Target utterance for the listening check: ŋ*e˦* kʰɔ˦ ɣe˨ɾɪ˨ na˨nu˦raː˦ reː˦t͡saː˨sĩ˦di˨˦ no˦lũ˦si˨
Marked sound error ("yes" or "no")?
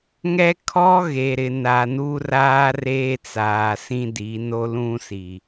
yes